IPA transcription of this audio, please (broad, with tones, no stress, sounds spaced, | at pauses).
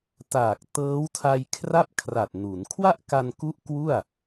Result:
t aː˨˩ k̚ t ɤː˦˥ w tʰ a˧ j kʰ r a˥˩ p̚ kʰ r a˨˩ t̚ n u˩˦ n kʰ w a˥˩ ʔ k a˧ n k u˦˥ ʔ k w u˥˩ a̯